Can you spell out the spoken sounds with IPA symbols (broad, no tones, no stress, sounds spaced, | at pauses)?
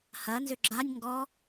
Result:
h ɐ n z ʏ ɡ͡ǁ a nʲ ŋ ɡ ɔ